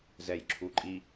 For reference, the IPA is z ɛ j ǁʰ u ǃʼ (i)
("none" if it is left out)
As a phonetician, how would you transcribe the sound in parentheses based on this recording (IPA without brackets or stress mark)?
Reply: i